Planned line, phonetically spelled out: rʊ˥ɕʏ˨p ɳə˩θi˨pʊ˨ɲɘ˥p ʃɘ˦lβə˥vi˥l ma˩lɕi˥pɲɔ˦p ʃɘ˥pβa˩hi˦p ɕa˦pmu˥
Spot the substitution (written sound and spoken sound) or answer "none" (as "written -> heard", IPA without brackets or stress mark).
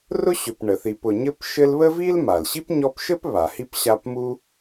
none